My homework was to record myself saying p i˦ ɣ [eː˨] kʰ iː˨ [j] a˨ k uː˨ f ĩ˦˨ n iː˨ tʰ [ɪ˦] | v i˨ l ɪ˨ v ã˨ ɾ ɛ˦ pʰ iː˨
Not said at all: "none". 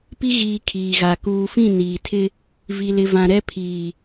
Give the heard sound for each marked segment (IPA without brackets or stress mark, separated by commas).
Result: iː˨, ɣ, ɪ˦